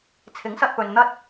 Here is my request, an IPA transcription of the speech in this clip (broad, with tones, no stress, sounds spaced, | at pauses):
t͡sʰ ɪ˨˥ ŋ s ɐ˧ t̚ p ɵ˨ n n̪ ɐ˥ t̚